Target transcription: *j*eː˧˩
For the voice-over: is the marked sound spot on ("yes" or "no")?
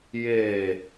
yes